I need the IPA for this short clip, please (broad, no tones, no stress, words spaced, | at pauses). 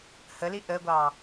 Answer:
həli ʔəɡʷɑ